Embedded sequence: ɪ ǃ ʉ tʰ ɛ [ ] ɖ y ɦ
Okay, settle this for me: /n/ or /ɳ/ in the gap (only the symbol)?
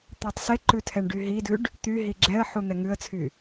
ɳ